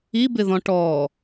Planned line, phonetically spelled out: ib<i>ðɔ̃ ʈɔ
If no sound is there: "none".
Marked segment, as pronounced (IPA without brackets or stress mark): ɪ